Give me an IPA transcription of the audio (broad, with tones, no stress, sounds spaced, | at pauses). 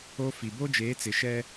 o˦ f i˨ b o˦ d͡ʒ eː˨˦ t͡s ɪ˨ ʃ ɛ˦